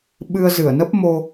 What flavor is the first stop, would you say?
implosive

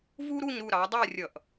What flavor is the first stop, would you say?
plain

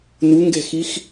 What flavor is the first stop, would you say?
plain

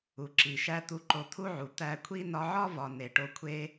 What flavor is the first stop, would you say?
click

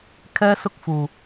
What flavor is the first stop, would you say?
aspirated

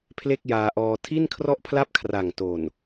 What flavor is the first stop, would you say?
aspirated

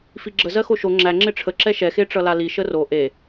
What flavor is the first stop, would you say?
click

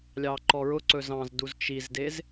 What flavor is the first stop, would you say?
click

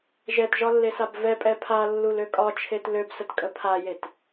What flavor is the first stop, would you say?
plain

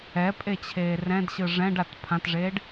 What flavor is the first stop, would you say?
ejective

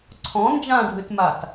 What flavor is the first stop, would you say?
click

